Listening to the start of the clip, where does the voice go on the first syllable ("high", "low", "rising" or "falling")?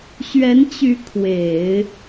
rising